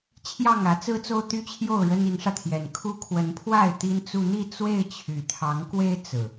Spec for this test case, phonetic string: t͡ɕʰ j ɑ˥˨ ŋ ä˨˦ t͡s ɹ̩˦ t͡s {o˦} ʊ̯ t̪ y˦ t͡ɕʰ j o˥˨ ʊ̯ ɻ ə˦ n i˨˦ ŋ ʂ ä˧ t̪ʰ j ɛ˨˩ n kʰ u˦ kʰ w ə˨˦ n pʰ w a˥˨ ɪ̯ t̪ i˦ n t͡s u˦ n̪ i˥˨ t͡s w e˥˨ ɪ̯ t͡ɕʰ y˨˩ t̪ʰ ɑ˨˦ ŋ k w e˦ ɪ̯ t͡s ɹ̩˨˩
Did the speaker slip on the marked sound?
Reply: no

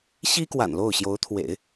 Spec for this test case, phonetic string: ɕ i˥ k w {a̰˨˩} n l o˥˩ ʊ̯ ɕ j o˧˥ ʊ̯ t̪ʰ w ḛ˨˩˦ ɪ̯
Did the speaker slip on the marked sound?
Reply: no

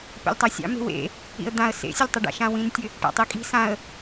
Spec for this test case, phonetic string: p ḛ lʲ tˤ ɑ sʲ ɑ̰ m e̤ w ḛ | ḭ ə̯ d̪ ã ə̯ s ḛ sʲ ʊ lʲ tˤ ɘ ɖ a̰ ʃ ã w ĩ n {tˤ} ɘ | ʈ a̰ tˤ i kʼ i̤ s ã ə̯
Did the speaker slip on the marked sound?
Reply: yes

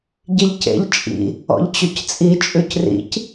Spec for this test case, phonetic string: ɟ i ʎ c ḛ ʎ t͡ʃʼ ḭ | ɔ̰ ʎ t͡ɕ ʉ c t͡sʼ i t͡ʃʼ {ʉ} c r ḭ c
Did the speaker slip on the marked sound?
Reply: no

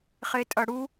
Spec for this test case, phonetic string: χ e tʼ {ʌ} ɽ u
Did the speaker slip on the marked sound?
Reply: no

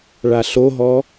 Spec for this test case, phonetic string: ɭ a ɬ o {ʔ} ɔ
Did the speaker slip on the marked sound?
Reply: yes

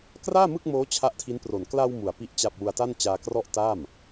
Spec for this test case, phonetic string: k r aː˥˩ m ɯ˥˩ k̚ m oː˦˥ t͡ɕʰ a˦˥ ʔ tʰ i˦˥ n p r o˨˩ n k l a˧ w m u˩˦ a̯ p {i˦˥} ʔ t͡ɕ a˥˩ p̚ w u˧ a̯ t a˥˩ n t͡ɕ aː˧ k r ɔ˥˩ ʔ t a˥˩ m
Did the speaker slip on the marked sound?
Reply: no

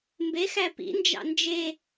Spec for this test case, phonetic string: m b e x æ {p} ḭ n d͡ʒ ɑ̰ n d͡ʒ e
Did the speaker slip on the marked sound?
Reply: no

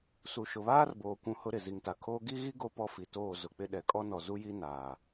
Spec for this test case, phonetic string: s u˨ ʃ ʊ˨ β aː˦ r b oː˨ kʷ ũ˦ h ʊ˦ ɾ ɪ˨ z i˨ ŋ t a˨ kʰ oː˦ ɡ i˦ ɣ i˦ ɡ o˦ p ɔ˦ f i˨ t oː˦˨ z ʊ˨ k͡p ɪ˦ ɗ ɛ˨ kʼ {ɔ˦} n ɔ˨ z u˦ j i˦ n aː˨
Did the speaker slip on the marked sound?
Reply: no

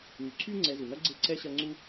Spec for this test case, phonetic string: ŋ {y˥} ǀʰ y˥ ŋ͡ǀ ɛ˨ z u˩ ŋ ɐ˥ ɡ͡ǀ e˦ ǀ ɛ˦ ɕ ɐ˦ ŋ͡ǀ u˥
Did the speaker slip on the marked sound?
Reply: yes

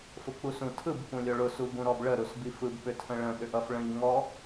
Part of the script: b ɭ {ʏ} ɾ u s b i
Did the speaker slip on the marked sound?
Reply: yes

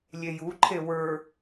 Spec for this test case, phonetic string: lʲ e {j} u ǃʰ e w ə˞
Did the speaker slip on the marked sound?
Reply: no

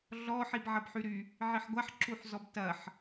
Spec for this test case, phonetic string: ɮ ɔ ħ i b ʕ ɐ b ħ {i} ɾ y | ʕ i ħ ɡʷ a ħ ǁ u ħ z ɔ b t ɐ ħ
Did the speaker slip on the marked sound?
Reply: yes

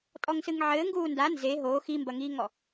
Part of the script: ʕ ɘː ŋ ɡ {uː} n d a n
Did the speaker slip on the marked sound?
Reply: no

